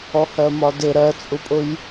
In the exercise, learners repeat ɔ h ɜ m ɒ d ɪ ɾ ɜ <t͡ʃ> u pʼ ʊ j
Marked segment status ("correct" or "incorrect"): incorrect